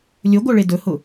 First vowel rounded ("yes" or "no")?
yes